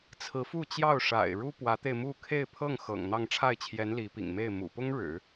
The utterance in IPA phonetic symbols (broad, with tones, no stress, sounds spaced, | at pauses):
t͡sʰ ɹ̩˧˥ f u˥˧ t͡ɕ j ɑ˥˩ ʊ̯ ʂ a̰˨˩ ɪ̯ ɻ u˥ p w ä˧˥ t̪ e˧ ɪ̯ m u˥˧ kʰ e˥˧ ɪ̯ pʰ ɤ˥˩ ŋ x ɤ̰˨˩ ŋ n̪ ɑ˥˧ ŋ ʈ͡ʂʰ a˥˩ ɪ̯ t͡ɕʰ j ɛ˧˥ n l i˧˥ p ḭ˨˩ ŋ m e˥˩ ɪ̯ m ṵ˨˩ p ʊ˥ ŋ ɻ ɻ̩˨˩˦